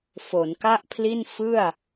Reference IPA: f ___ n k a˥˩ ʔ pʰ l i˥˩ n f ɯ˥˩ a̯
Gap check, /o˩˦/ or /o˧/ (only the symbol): o˩˦